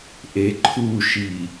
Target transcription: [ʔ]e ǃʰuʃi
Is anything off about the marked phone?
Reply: no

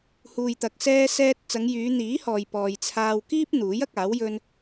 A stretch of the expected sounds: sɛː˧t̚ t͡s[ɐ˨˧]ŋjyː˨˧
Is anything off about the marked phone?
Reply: no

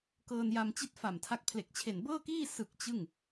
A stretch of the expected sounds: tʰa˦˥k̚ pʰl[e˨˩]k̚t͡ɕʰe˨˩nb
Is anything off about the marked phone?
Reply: no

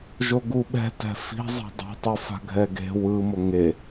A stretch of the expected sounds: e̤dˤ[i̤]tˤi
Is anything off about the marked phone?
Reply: no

